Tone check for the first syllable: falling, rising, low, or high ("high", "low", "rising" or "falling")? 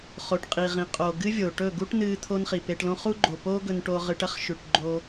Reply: low